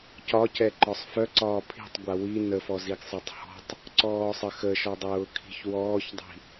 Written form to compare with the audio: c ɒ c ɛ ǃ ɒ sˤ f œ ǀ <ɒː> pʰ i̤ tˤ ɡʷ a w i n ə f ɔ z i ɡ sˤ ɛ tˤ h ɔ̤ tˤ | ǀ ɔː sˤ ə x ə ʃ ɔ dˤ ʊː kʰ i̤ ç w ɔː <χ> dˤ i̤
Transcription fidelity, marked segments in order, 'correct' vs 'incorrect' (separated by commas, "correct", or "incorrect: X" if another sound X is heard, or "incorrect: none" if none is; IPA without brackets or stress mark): correct, incorrect: ç